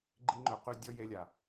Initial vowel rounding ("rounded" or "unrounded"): unrounded